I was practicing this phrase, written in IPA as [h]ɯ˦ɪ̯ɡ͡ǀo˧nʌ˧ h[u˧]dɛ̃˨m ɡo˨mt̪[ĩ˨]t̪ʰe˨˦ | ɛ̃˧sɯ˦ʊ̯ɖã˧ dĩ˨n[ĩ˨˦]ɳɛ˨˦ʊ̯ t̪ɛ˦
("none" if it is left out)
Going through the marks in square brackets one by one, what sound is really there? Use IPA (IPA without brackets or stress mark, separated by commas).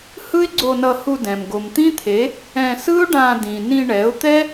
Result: h, u˧, ĩ˦, ĩ˧